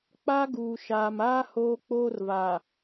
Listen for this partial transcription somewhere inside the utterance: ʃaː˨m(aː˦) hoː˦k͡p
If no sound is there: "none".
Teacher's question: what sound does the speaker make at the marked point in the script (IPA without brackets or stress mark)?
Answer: aː˦